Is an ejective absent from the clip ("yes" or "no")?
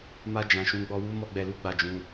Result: yes